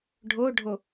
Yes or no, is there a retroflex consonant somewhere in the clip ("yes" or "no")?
yes